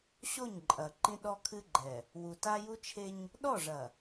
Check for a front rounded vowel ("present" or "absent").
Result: absent